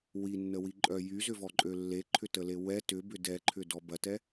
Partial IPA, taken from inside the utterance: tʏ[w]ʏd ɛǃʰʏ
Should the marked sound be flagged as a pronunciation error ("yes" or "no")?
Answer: yes